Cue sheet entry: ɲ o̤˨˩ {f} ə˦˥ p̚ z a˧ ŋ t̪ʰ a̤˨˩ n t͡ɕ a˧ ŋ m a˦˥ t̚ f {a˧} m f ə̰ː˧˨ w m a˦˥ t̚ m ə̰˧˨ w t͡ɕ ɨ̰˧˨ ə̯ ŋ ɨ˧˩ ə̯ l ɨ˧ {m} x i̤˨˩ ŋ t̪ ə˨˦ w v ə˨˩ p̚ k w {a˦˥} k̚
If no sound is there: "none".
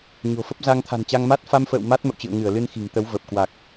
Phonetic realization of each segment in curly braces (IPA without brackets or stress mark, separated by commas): f, a˧, n, a˨˩